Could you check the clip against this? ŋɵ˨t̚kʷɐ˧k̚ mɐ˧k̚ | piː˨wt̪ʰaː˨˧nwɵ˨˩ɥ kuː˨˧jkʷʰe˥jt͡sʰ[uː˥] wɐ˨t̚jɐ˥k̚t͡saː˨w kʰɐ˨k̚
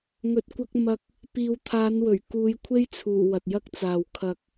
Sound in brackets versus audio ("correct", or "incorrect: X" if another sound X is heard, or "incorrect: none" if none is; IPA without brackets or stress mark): incorrect: uː˨˩